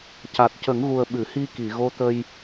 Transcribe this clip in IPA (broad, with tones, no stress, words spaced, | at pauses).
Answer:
ca˨˩t̚cə˨˩˦ŋɣu˨˩ə̯ ɓɨ˨˩˨hi˧ki˨˩˨ ɣo˧˥t̪ə˧j